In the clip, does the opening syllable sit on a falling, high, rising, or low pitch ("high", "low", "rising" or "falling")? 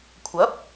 rising